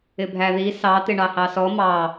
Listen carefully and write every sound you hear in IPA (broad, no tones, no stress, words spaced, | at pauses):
ɪbʱæði sɑ t̪ɪɳɑhɑsɔ mɑ